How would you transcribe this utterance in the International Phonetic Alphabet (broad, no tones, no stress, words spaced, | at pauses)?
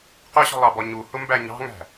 qʊɕɔ̤lˠɑbɔ ɲuhʊmbæ ɲɑ̤ŋæ̤